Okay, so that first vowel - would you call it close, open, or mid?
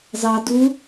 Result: open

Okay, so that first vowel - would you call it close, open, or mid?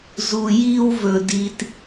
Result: close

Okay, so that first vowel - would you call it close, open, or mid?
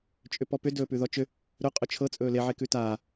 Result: close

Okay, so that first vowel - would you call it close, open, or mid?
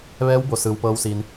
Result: mid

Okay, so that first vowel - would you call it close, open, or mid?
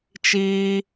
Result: close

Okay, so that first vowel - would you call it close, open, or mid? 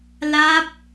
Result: open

